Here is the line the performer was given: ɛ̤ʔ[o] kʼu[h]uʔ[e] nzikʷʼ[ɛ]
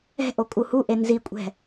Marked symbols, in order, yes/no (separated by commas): yes, yes, yes, no